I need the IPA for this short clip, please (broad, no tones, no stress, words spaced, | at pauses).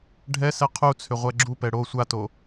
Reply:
ɖʱɛsɛ qʰut͡sʰʏ ʁʷɛɡ͡ǁupɛ ɽo sʷato